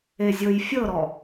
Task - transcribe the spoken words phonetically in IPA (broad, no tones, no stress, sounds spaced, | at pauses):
e zʲ ɤ j fʲ ɤ ɾ ɔ